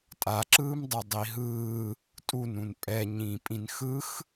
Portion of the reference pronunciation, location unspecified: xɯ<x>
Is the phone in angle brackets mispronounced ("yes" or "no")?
no